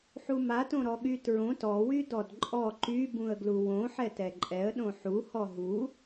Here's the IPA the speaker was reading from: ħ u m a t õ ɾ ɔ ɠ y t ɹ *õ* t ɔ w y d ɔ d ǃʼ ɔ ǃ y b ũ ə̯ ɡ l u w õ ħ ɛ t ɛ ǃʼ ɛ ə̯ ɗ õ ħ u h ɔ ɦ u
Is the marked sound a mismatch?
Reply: no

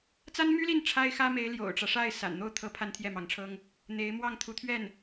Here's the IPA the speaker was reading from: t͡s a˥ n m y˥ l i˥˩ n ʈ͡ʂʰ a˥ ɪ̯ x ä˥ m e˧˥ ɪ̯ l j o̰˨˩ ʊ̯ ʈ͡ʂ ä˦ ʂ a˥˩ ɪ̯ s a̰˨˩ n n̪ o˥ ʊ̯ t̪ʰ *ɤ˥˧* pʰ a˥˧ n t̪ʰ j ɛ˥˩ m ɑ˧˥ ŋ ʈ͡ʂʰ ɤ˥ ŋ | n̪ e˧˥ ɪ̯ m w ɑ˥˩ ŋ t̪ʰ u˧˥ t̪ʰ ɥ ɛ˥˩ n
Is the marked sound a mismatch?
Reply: yes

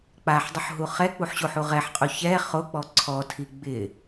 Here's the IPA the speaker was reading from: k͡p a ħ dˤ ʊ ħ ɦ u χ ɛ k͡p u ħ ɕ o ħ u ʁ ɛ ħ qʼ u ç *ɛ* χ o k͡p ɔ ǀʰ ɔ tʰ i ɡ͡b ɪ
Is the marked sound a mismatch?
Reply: no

